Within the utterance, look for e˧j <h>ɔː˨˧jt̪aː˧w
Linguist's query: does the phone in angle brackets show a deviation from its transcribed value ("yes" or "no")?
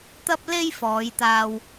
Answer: yes